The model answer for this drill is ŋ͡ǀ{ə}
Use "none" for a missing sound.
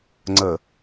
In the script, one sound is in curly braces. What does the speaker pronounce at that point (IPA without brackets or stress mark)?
ə